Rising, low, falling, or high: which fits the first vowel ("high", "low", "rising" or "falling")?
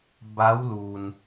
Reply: rising